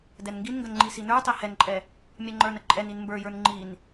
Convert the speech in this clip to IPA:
dɛnŋɡinŋɡən ŋ͡ǃisinə˞tˤɛ hɛnǃʼɛ | mʲɛŋ͡ǃə˞nə ǃʼɛnin mbə˞jə˞n ŋ͡ǃin

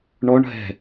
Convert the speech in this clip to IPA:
ɳɔɳ ɦɛ̤

